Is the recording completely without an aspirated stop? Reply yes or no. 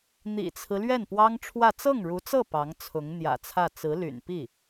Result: no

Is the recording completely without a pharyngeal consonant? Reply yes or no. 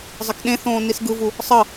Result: yes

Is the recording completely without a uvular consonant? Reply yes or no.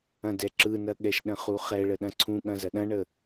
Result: no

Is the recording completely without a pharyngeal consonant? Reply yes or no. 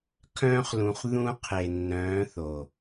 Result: yes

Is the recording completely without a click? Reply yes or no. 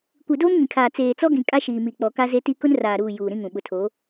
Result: yes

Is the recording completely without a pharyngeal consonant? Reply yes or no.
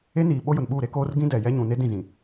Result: yes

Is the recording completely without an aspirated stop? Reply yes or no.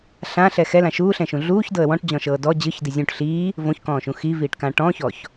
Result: yes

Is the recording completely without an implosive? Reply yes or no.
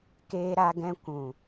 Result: yes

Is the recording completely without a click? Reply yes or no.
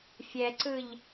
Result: no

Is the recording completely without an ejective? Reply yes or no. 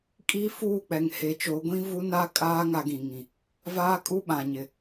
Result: no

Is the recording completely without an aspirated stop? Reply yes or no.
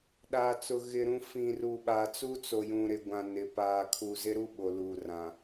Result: no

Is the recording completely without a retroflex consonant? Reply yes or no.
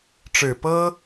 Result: no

